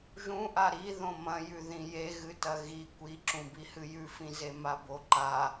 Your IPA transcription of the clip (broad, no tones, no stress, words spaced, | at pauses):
ʒũʔa ɾiðõ mɐ̃jʉ ðĩje ɣɨtɐɣi kʷiǁũbihɨ jʉfĩze maboǃa